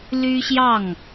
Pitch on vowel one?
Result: high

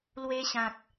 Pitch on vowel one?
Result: high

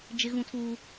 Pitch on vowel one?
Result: high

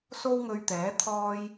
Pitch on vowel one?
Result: high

